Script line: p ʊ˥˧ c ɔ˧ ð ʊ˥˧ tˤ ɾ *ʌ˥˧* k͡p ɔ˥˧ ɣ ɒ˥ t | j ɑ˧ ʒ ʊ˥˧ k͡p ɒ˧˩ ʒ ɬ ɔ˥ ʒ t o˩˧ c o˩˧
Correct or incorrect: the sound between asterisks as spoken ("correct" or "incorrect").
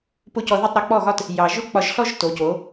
incorrect